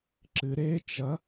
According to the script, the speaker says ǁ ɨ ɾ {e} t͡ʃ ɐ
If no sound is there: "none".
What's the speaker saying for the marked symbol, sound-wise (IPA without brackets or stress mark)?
e